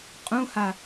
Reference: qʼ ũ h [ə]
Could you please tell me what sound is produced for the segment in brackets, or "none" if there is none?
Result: a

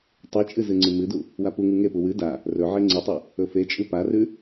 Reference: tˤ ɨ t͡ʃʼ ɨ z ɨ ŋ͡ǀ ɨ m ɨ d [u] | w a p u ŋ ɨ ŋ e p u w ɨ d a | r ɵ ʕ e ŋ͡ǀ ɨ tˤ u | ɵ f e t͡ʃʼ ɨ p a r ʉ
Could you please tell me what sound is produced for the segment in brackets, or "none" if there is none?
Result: u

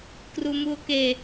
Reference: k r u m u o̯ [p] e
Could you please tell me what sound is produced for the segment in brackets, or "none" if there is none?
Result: k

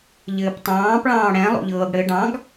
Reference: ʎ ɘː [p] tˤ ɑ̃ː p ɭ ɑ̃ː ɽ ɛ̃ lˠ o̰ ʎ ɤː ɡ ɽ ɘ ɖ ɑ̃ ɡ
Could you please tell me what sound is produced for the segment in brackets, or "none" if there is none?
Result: p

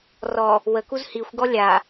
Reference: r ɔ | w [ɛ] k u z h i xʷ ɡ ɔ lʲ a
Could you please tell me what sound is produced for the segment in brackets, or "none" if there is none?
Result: ə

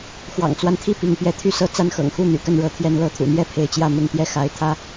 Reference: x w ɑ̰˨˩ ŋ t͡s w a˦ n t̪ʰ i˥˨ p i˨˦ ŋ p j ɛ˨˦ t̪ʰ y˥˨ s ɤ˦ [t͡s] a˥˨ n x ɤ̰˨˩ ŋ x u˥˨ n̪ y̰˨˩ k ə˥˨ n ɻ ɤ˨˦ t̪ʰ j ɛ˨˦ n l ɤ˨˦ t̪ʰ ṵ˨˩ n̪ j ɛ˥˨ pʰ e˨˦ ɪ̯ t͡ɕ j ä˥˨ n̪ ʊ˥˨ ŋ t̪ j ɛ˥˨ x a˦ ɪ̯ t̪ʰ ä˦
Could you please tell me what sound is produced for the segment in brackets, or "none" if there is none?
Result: t͡s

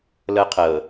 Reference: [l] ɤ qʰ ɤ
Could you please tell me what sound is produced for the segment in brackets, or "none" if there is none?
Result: l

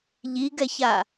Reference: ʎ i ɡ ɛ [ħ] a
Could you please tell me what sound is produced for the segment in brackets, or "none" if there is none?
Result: ç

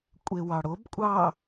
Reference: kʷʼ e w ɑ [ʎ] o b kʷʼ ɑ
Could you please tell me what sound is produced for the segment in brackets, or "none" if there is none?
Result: ɽ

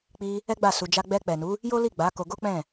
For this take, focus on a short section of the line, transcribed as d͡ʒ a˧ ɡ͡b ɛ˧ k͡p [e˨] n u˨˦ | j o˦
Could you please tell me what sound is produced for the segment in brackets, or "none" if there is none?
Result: ɛ˨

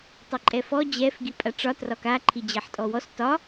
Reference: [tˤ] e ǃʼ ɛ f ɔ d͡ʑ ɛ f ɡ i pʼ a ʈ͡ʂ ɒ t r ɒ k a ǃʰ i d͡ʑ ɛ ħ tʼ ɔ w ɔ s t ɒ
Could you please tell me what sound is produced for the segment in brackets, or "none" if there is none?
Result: tˤ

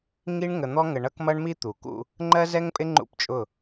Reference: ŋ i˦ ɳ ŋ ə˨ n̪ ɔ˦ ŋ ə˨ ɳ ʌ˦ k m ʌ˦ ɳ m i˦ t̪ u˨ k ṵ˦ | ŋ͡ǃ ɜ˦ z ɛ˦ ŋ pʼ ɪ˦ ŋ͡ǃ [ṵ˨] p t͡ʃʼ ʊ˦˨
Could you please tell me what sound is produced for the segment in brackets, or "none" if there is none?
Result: ṵ˦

